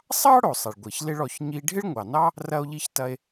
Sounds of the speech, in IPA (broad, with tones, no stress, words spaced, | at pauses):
sˤɑ˥ ɽo˩sˤɐ˩ɭɡʷi˩ç lɪ˧ɭ ɔ˩ç ɲi˧ ɖʱɪ˥ɭŋʷɑ˩nɑ˥ | rɐ˧o̯ʎi˧çtɐ˧e̯